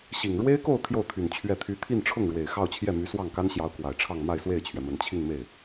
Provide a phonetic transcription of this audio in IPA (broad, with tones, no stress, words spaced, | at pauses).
ɕi˨˩ŋ ɻwe˥ɪ̯ko˥˧ʊ̯ t̪ʰjo˥˩ʊ̯t̪ʰy˨˩n t͡ɕʰɥɛ˥˩t̪ʰy˥ t̪ʰi˥˧nʈ͡ʂʰʊ˥˩ŋ ɻwe˨˩ɪ̯xɑ˥˧ʊ̯t͡ɕʰjɛ˥˩ my˧˥ swɑ˥˩ŋka˥nɕjɑ˧˥ʊ̯ kwa˨˩ɪ̯ʈ͡ʂʰɑ˥˧ŋ ma˥˧ɪ̯swe˥˩ɪ̯t͡ɕʰɥɛ˩ mə˨˩nt͡ɕʰi˥˧ŋme˥˩ɪ̯